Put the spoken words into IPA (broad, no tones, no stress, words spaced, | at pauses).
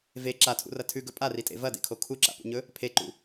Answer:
ve ǁatʰṵrɐ tʰʉɡɵ pʼaritʼḛ vɐdḛkʰo kʰuǁa̰pṵɲɵ | pʰeǃṵ